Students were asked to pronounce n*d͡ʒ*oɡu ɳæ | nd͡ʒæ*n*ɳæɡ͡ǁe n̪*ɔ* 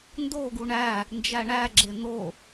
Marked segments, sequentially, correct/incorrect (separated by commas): incorrect, incorrect, incorrect